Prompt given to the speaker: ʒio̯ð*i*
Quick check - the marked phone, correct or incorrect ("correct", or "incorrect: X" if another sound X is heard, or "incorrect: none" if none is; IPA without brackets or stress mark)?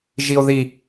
correct